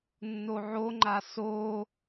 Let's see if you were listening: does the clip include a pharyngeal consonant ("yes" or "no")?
yes